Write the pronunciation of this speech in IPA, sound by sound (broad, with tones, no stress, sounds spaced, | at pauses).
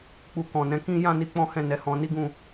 k͡p u˨ k ɔ̃˨ n ɛ̃˨˦ k ĩ˦ j ã˦˨ n i˧ k͡p ɔ̃˦ h ɛ̃˦˨ n ɛ˨˦ h ɔ̃˧ n i˦ ɡ ũ˦˨